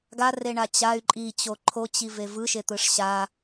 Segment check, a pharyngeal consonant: absent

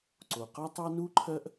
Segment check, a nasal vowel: absent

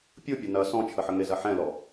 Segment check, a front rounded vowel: absent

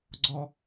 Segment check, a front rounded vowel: absent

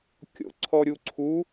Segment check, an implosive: absent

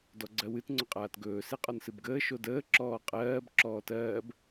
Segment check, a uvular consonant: present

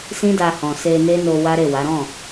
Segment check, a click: absent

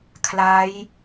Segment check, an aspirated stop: present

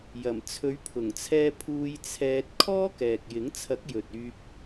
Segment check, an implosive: absent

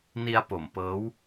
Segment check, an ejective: absent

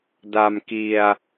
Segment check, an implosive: absent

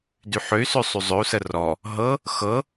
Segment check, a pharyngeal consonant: present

